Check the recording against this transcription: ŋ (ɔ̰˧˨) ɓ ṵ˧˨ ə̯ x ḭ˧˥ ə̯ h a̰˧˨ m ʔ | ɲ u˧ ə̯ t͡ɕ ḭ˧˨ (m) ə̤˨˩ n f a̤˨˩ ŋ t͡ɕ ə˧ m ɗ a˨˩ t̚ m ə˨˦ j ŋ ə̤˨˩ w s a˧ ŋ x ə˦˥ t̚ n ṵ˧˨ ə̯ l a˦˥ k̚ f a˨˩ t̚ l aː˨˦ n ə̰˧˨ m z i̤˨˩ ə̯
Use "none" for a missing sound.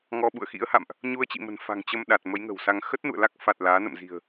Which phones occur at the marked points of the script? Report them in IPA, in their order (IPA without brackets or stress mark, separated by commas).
ɔ˧, m